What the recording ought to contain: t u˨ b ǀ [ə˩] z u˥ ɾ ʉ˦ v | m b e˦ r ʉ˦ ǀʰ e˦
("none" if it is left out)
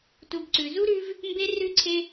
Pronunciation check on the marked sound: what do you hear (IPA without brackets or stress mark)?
ʉ˩